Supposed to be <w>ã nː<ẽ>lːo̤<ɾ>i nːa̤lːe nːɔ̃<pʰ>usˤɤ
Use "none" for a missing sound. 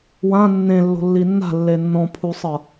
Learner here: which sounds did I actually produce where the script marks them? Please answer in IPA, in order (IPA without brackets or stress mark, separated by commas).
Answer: w, ẽ, lː, pʰ